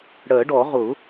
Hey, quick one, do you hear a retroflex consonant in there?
yes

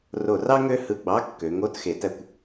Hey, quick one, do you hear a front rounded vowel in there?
yes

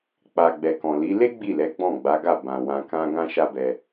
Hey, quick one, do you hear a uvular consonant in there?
no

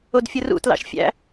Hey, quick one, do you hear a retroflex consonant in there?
no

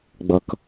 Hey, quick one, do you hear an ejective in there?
no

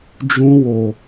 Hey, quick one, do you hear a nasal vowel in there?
yes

